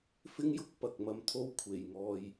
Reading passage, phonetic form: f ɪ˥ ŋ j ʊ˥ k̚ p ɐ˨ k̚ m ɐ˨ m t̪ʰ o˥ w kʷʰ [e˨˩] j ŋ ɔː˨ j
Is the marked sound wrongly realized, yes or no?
no